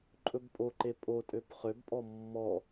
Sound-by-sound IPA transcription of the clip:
ǃʼɵbpʼoǃe pʼo tʼøpχøbpʼɔ mːɔ

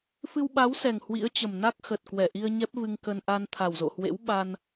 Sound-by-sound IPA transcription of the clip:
fɨ˧wɓa˨˦wsɛ˨˩ŋ hwḭ˧˥ə̯t͡ɕə˨˩mna˦˥k̚ xə˨˩t̚kwɛ˧˩ʔi˧ə̯ ɲɛ˦˥p̚vɨ˧ŋkə˧n ʔa˧nt̪ʰa˨˩wzo̰˧˨hwḛ˧˥w ɓa˧n

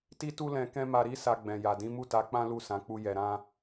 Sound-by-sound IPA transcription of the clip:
ti˦tu˦lɛ̃˧ kɛ̃˦ma˧ɾi˦ sa˧ɡ͡bɛ̃˨ja˨ dĩ˨˦mu˦˨ta˨˦k͡pã˦ lu˦˨sã˨˦k͡pu˧ jɛ˨ɾã˧

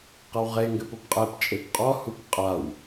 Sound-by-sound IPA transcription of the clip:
qɐwʁeŋɡɘ popqʼɛpt͡ʃʼep qʼɔhup qʼaw

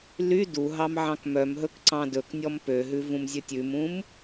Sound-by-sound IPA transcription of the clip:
ly duɦɑm ʕɑ̃kmœmɦɵk ǀɑ̃dɵknʲɔm pøɦʉ vũmzʲɵtʲʉmũm

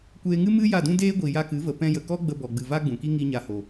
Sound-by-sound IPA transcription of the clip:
kʷeː˧ŋɨ˦ mɨ˦ ja˦˨dũ˦deː˦ɡʷi˨ ja˧kɨ˨˦və˨ pɛ̃˧jə˨kɔ˦ ɡ͡bə˧bɔ˨ɡ͡bɨ˨ va˦ɡ͡bũ˨ki˦ ŋi˦ɲa˧ho˨

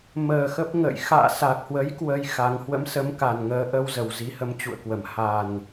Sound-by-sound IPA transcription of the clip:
məː˨˩ xə˦˥p̚ŋə̰˧˨j xa̰ː˧˨sa˨˩k̚hwə˨˦j kwə˧jxa˨˦ŋ hwə̰˧˥msə˨˦mka˨˩nŋəː˨˦ ʔə˧wzə˨˩w zi˨˦hə˨˦mt͡ɕṵ˧˨ə̯kwə˧˩m ha˨˩n

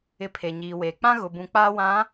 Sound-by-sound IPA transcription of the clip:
ɪ˨ pʰe˨ɲiː˨weː˨ k͡pã˦ɣʊ˨ bũ˨k͡paː˦wã˨˦

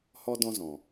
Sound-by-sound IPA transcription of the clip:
hɔ˧dɔ̃˧zɔ̃˨

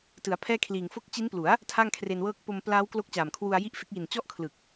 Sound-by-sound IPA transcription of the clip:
tɯ˩˦a̯pʰɛː˥˩kʰliː˨˩ŋ fo˦˥k̚t͡ɕi˦˥nplu˩˦a̯ | tʰa˥˩ŋkʰre˧nwɤː˥˩k̚ po˧mplaː˦˥w klo˦˥k̚t͡ɕaː˨˩mkʰwu˧a̯ ji˥˩ʔfe˦˥k̚ji˨˩n t͡ɕɔ˥˩ʔkʰlɯ˨˩k̚

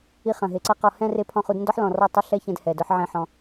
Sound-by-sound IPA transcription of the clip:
i˧χɐ̃˨ɦe˨ǀɐ˦ qɔ˧ hɛ̃˦re˧ pʰɔ̃˦˨χu˦d ndɔ˦ħlɔ̃˨rɔ˧ tˤʊ˦ɬɛ˦çɛ̃˧d hɛ˨ dʊ˦ħʕẽ˦ħɔ̃˧

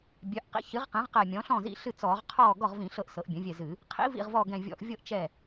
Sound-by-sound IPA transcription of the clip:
bʲœ˩˥ʔqḭ˩˥ çɨ˩˥ʁqɛ̃˩˥ʁqɛ˧˩ mʲɔ̃˩˥ɬɔ̃˥˩zḭ˧˩ ɬɨ˥˩t͡sɔː˧˩˧ʁqʰɔː˥˩ ɡɔ˥˩ʁvĩ˧˩˧ɬɤ˧˩ʔ sɤ˩˥ʔbʲœ̃˩˥vʲɛ˧˩zɨ˧˩˧ | qʰḭ˩˥vḭ˧˩ʁvɔ˧˩ ɡɛ̃˧˩vʲɔ̰˧˩˧ʔvʲɤ˥˩ʔ t͡ʃɛ˥˩

